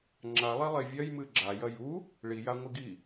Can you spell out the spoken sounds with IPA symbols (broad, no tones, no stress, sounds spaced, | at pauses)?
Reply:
ŋ͡ǁ a lˠ i lˠ e vʲ ɐ j m ɨ ɡ͡ǁ a j ɐ j u | ɭ i j a ŋʷ ɨ ɡ i